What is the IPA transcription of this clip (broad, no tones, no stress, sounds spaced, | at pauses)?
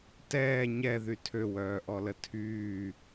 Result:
t ɛː ɲ ɛ ð y tʰ ø w œː ʔ ɔ l ə tʰ yː